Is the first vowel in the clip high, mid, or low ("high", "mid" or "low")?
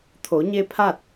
mid